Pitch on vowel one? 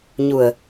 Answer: low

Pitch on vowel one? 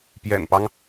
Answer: low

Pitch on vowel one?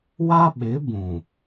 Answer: high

